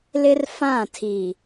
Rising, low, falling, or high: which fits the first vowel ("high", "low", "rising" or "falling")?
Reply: high